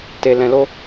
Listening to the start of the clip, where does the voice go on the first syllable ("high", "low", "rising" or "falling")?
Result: low